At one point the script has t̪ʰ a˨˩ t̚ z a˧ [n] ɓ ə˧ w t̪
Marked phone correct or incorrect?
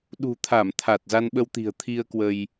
correct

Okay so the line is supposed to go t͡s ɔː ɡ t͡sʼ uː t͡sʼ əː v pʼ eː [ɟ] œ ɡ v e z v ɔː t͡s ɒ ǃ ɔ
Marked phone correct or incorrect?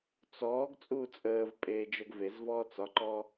incorrect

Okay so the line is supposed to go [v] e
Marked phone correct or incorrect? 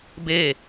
incorrect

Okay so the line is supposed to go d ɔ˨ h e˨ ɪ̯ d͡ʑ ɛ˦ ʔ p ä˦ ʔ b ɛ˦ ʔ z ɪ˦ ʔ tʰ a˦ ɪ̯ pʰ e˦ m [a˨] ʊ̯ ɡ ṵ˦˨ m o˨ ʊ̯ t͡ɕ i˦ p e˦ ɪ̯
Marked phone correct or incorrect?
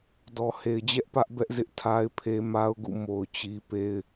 incorrect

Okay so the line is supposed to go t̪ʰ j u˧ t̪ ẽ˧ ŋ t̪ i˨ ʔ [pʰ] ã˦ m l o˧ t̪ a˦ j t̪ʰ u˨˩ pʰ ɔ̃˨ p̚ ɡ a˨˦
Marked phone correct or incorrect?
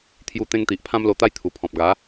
correct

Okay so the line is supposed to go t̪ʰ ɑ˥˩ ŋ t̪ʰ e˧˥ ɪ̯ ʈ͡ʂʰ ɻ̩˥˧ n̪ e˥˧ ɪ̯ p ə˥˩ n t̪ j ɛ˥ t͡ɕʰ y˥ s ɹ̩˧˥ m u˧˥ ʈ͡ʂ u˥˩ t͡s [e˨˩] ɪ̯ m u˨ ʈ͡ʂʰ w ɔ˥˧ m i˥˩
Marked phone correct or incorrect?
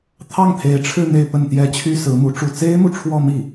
incorrect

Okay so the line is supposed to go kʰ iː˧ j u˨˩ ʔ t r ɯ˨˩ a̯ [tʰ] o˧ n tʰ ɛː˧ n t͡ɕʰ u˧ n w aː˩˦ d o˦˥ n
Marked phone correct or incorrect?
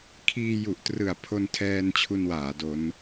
incorrect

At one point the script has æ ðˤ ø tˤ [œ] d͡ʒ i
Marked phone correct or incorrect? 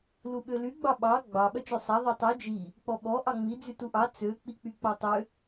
incorrect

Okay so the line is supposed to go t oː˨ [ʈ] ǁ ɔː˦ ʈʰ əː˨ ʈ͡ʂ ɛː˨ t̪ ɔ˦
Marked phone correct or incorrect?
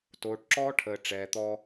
correct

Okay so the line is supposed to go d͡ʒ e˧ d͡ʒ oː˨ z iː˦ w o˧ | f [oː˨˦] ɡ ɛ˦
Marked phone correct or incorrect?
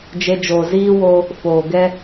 incorrect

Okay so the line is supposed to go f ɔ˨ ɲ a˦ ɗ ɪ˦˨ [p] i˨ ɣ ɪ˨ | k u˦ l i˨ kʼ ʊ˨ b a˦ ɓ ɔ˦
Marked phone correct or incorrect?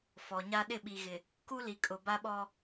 incorrect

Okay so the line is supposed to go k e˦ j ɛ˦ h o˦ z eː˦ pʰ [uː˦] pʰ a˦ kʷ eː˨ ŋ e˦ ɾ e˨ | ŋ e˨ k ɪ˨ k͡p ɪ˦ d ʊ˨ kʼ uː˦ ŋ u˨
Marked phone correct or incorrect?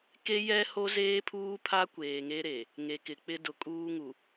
correct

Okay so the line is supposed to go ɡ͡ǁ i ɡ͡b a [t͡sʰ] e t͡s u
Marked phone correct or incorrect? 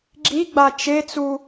incorrect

